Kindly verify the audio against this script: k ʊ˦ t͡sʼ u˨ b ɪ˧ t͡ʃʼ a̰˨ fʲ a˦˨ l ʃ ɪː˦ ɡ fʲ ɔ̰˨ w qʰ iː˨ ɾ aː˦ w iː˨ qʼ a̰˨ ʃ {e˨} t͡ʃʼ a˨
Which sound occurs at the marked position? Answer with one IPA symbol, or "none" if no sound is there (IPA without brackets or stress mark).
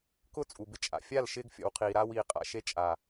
e˦